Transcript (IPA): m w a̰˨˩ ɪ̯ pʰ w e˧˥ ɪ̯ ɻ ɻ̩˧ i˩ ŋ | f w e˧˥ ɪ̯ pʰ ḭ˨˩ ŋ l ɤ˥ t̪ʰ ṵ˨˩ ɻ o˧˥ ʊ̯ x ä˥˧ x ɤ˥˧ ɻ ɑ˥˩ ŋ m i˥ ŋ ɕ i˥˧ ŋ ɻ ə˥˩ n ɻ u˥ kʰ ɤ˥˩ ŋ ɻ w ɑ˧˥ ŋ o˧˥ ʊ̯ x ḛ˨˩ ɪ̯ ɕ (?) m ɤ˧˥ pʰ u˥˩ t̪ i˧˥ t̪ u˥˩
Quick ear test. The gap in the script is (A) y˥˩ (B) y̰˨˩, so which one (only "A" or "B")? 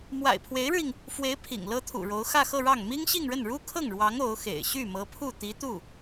A